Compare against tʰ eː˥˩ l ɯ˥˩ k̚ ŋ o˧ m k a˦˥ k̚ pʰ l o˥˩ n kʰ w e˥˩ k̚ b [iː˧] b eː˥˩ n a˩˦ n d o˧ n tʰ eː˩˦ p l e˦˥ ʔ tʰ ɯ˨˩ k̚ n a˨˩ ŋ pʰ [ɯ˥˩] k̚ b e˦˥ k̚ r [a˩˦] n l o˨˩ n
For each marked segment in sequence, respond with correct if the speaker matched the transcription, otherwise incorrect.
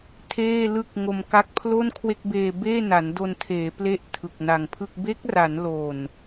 incorrect, correct, correct

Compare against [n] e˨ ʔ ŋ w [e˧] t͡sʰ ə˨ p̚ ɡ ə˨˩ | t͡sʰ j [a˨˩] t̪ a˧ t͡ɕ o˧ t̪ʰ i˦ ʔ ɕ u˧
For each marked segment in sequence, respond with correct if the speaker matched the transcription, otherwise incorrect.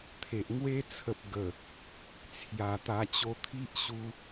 incorrect, incorrect, correct

